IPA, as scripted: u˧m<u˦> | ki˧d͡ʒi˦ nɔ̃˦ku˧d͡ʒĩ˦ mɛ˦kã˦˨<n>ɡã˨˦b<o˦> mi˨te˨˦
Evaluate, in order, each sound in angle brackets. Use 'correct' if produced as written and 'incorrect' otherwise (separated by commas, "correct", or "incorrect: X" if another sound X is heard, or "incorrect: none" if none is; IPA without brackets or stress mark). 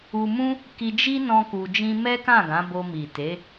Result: incorrect: ũ˦, incorrect: none, incorrect: o˧